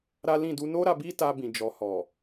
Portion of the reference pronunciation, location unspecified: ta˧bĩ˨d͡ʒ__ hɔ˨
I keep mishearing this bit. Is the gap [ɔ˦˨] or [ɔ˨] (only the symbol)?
ɔ˨